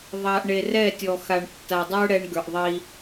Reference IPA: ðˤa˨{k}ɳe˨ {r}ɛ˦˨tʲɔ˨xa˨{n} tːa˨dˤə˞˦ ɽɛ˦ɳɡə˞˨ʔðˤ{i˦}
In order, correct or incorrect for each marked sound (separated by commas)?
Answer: incorrect, correct, incorrect, correct